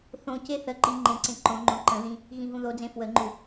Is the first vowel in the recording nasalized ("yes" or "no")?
yes